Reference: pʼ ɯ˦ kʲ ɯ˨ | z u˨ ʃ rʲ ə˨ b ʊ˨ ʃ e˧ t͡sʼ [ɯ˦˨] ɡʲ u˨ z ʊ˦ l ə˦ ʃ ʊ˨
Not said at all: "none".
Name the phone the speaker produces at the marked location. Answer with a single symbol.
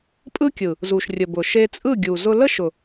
ɯ˦˨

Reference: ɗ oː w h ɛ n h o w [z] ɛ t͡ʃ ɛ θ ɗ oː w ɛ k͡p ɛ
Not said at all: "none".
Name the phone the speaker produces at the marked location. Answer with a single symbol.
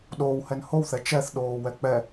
θ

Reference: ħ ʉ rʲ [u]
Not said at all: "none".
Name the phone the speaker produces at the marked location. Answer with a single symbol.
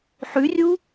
u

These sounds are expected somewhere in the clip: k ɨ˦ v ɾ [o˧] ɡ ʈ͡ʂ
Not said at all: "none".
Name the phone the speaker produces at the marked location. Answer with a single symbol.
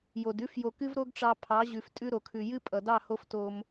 o˦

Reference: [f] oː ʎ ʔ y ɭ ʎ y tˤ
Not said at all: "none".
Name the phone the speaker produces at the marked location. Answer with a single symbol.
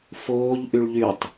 f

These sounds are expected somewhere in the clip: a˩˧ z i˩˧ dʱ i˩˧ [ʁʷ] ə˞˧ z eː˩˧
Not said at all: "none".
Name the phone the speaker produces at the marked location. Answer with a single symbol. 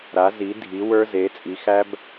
w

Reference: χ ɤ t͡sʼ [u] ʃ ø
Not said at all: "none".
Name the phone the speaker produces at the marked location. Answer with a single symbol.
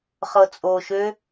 o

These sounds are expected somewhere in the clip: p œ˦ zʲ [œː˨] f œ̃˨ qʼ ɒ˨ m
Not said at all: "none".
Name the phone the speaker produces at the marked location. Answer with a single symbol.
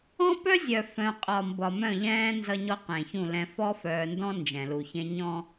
œ˨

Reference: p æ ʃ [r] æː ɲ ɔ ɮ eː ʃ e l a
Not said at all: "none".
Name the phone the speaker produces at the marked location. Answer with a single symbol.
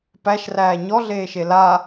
r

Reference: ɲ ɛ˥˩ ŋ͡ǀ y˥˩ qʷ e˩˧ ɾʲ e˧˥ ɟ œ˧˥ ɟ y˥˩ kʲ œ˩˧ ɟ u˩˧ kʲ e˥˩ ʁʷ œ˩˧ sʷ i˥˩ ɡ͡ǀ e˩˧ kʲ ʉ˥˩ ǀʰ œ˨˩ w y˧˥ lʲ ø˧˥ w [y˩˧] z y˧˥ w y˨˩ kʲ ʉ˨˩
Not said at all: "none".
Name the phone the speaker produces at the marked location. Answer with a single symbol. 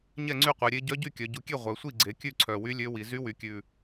i˩˧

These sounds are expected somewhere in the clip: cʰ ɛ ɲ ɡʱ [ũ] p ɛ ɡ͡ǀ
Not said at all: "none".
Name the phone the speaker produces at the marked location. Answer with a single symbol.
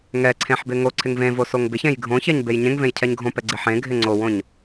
õ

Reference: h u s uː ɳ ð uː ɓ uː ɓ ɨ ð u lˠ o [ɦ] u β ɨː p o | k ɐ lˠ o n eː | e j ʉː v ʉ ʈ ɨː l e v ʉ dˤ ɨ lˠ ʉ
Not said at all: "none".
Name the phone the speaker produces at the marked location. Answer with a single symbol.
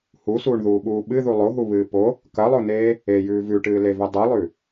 ɦ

